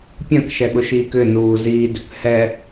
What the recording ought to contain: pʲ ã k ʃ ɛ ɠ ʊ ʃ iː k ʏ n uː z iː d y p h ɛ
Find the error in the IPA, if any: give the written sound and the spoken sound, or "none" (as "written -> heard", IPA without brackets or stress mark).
y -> ʏ